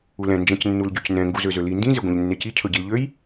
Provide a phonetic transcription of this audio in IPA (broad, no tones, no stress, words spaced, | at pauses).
ulɛ̃ nd͡ʒɛ̃cnːulɟycnɛ̃ ŋɡuzøzøli ndĩ zeɡʷɛ̃ʎnːeci cʰɵɟilʎøj